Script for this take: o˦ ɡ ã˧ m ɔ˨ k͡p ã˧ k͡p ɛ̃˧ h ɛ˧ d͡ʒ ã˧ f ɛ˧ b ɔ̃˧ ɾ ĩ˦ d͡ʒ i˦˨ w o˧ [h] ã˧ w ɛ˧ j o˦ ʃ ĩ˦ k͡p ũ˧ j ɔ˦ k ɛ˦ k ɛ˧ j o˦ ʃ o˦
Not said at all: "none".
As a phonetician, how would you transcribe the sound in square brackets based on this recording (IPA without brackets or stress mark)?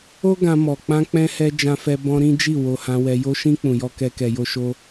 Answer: h